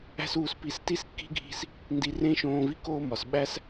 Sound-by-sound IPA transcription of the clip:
æ̤˥ s uː˧ s p i˧ s t i˥ s kː i̤˥ ɡʱ i̤˧ s | n d i˧ r ẽ˥ ʃ õː˧ v i˥ k oː˥ m ɒ˩ s ɓ æ˥ s

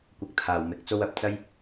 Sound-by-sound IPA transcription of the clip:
kʷ ɐ˨ k̚ t̪ʰ aː˨˩ w m ɪ˨˥ k̚ t͡s o˥ w ɐ˨ p̚ t͡s ɐ˥ j

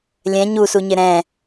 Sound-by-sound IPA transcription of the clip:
lʲ ɛ̃ ɲ u s u ɲ ɪ ɾ ɛ̃

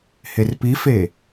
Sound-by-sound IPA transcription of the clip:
h e r p i f e

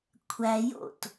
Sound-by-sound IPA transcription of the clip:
kʷʰ æ j o̰ t

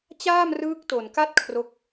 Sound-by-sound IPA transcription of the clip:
t͡ɕ aː˥˩ m r ɯː˦˥ k̚ t o˨˩ n k a˥˩ t̚ kʰ r o˦˥ k̚

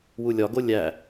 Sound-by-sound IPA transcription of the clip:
w u lʲ ɒ ɡ o lʲ æ

